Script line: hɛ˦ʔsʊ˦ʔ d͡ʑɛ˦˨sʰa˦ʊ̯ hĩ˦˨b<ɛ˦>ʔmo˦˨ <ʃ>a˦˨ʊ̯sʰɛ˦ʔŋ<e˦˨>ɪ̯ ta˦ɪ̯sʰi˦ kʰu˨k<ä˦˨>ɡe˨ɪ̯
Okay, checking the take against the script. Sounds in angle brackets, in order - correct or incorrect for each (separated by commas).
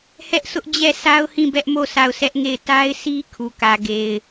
correct, incorrect, correct, incorrect